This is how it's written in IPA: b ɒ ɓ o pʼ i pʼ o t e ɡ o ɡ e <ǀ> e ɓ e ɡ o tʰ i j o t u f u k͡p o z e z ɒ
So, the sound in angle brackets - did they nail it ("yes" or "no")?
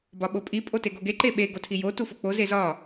no